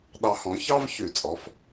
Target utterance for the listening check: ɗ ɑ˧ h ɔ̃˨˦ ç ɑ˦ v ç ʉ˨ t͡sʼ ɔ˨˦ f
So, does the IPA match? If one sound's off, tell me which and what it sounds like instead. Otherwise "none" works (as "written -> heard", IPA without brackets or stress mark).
none